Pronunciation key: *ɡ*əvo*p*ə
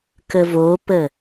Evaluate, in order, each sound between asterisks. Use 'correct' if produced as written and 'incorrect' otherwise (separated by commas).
incorrect, correct